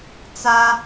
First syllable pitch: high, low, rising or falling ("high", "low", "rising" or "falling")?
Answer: high